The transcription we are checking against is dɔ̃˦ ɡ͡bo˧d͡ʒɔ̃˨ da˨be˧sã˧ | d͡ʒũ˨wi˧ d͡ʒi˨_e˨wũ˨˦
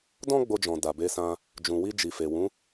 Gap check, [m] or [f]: f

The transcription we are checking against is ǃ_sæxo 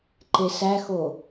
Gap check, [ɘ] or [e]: e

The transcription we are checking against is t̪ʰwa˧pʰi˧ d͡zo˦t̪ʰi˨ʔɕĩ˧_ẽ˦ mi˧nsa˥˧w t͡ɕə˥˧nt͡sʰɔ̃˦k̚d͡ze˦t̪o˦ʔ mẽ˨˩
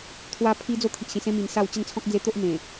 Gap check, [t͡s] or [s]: s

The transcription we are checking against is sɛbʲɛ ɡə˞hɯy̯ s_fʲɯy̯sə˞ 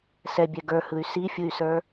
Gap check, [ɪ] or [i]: i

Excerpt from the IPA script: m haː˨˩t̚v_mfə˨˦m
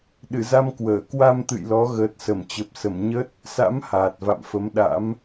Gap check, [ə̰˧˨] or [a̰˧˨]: a̰˧˨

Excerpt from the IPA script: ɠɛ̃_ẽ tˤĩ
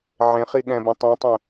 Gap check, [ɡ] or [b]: b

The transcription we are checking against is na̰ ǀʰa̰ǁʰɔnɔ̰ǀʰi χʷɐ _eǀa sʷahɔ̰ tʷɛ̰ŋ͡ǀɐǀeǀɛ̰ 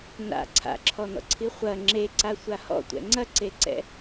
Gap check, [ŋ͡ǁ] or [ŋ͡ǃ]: ŋ͡ǁ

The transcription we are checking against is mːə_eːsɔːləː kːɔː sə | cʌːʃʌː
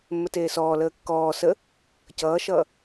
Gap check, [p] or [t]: t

